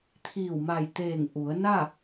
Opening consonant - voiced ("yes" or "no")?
no